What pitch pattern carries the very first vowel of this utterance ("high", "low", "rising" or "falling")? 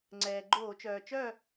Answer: low